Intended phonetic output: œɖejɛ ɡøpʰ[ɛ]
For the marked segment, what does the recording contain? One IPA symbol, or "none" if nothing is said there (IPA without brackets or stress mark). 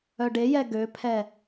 ɛ